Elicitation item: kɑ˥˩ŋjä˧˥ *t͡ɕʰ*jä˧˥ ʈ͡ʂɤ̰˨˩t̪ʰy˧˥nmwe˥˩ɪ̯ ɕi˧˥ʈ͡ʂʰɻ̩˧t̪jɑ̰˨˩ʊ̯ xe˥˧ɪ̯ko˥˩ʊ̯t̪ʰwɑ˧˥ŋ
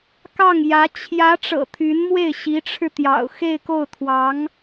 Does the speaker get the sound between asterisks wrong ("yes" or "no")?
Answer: no